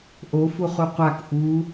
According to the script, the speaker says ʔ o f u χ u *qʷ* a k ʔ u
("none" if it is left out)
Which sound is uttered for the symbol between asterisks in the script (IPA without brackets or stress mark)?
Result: qʷ